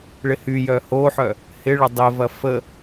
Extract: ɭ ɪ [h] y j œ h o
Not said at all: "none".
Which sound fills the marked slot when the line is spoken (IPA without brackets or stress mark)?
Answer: h